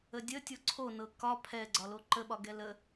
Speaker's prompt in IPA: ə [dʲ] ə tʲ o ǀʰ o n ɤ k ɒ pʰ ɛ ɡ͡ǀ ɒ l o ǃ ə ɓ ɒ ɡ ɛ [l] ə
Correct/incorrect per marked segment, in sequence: correct, correct

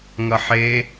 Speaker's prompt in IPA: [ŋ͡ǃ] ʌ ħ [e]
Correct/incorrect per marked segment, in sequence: incorrect: ŋ, correct

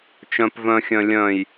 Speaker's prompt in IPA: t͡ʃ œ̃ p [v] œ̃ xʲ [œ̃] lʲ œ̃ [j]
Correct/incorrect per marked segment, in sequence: correct, correct, correct

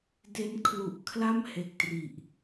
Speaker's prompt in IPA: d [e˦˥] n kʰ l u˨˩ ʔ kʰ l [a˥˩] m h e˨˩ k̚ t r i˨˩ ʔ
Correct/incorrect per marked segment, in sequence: correct, correct

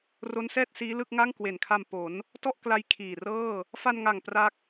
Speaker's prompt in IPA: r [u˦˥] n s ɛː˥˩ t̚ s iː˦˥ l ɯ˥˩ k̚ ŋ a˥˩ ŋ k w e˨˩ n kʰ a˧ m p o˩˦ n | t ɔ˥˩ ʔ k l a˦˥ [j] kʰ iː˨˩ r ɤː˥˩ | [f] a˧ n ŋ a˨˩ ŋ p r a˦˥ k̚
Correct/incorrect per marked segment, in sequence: incorrect: o˦˥, correct, correct

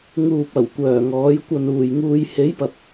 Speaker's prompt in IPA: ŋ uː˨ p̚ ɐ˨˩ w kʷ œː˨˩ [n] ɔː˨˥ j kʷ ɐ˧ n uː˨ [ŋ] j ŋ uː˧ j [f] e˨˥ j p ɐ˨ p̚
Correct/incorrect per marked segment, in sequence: incorrect: ŋ, incorrect: none, incorrect: h

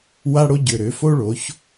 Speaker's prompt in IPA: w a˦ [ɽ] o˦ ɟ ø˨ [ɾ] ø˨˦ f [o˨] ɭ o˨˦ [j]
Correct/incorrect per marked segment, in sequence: correct, correct, incorrect: o˦, incorrect: ç

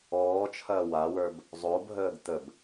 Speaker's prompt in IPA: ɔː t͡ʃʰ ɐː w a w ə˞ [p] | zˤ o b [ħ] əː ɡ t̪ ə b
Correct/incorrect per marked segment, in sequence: incorrect: b, incorrect: ɦ

